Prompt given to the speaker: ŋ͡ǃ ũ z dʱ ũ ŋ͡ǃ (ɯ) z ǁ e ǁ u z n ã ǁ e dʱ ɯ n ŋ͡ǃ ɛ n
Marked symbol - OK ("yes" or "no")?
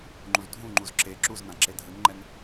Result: no